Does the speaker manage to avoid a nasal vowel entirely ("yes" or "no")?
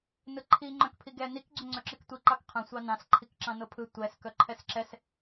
no